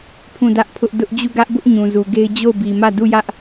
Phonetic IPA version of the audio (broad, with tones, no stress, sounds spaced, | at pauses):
pʰ ũ˦˨ d ä˦ ʔ pʰ ʊ˦ ʔ d ʊ˦ ʔ d͡ʑ u˦˨ ɡ ä˦ ʔ b ʊ˦ ʔ ɲ ũ˨ z u˨ ɡ e˦ ɪ̯ d͡ʑ o˦˨ ʊ̯ b i˨ m ä˦˨ d u˦˨ j ä˦ ʔ